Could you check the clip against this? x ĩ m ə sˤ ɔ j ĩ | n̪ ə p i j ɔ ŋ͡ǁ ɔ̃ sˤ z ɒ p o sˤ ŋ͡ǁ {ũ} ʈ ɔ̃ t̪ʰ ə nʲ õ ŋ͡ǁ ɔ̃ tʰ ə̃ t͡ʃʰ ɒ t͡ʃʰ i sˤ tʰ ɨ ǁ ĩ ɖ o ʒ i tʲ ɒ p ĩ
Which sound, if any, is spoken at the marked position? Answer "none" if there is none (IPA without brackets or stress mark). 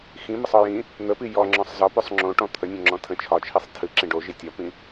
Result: õ